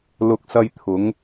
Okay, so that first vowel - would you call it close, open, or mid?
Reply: close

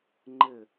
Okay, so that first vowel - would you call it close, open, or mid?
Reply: close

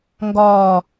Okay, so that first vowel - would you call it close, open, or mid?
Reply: open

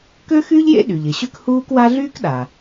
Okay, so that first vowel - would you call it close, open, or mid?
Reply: mid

